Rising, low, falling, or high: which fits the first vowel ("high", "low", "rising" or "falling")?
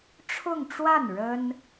falling